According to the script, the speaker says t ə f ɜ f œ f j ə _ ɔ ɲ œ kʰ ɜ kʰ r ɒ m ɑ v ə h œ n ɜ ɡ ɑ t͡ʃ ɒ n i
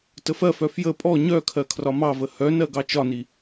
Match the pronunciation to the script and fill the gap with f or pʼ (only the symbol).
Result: pʼ